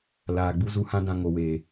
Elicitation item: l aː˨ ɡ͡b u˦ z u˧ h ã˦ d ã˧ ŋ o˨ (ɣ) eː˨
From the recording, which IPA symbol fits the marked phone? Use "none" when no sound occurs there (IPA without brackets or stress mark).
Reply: w